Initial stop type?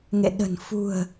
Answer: implosive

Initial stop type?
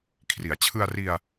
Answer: aspirated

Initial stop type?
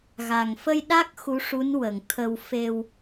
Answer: implosive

